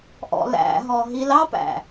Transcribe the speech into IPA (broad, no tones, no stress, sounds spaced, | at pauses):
ʔ ɔ̰ l æ̰ ɦ ɔ ɦ i l ɑ p æ̰